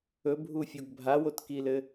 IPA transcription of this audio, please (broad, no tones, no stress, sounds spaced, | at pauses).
ɵ bʱ u fʲ o ɡ bʱ a w o t k i l ɘ